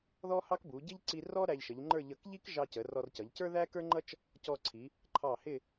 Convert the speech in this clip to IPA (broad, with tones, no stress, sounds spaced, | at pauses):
ð ɔ˥ h ɑ˥ k b u˩˧ ɟ ɪ˥ ʎ ǀ i˧ r ɔ˥ ɾ æ˧ ʎ ʃ ə˩˧ ʎ ŋ͡ǃ ə˞˥˧ ʎ ʌ˧˩ k ʎ i˥ k ʒ ɑ˧ c ə˩˧ r ɔ˧ r c ʌ˩˧ ʎ c ə˞˥ ð æ˥ k ə˞˥ ŋ͡ǃ ʌ˥ t͡ʃ | c ɔ˧ ǀʰ i˩˧ | ǃʰ ɑ˧˩ h ɪ˥˧